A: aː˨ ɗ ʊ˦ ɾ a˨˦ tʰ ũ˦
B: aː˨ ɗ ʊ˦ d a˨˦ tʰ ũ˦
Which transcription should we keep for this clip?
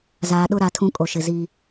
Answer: A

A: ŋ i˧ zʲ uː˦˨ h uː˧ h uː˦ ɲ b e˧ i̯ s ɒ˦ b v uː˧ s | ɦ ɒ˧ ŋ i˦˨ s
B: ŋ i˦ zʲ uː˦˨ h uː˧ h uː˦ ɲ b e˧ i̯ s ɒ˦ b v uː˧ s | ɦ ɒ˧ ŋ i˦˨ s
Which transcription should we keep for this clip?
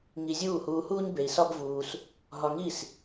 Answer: A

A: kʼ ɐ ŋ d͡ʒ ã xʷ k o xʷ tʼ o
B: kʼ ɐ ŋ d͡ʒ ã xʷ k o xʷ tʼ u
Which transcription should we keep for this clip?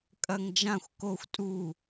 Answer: B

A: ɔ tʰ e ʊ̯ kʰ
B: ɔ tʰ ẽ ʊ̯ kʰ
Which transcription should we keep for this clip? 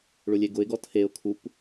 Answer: A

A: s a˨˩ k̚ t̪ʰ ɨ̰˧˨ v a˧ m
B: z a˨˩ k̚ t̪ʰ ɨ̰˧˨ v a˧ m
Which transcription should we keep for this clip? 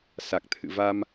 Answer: A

